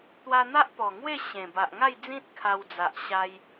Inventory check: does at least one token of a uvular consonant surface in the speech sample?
no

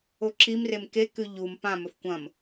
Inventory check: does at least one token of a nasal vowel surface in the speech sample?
yes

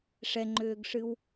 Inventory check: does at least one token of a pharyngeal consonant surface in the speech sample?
no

